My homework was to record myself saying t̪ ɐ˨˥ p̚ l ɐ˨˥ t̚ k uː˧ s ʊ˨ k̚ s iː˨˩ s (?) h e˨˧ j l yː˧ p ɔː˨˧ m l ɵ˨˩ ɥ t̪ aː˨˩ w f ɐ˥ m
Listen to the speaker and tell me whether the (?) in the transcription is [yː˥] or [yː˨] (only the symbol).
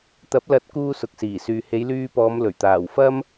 yː˨